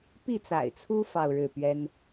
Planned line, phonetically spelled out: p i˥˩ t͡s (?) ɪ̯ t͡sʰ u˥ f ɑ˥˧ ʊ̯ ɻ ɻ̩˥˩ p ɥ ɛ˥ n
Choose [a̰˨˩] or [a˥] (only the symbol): a̰˨˩